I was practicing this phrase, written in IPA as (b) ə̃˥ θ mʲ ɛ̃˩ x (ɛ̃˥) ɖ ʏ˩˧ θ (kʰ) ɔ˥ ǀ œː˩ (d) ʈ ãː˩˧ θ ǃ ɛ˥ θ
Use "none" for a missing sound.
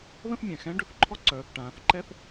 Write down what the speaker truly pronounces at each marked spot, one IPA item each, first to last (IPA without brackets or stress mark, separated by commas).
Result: ð, ɛ̃˧˥, ǃʰ, θ